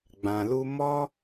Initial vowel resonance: nasal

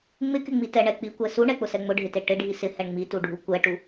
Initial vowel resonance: oral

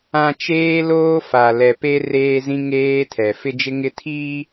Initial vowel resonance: nasal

